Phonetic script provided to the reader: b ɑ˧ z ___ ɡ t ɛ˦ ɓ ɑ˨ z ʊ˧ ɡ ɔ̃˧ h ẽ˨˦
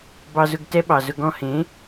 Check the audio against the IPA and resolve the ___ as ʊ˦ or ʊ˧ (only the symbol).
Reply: ʊ˧